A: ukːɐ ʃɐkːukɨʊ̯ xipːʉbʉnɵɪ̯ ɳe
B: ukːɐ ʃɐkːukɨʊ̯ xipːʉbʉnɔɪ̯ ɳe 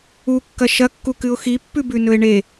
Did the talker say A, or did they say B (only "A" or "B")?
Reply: A